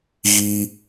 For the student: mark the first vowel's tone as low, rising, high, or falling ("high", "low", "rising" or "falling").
high